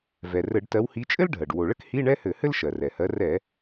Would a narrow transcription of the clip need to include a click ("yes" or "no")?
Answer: no